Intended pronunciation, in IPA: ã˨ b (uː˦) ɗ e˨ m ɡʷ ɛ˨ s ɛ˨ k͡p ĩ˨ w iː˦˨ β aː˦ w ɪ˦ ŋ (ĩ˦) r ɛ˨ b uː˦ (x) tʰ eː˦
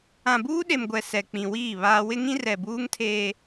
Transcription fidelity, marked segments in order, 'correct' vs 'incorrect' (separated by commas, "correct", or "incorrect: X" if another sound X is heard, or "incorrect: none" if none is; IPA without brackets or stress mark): correct, correct, incorrect: ŋ